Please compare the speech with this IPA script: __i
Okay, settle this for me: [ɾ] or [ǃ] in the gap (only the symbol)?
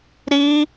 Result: ɾ